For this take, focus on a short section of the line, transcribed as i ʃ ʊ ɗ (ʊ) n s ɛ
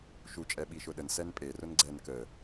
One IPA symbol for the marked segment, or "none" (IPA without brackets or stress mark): ə